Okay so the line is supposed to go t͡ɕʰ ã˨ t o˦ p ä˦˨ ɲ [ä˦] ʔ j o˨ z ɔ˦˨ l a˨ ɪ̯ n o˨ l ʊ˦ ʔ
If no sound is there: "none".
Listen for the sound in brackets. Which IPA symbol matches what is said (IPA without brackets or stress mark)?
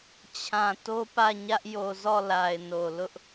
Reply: ä˦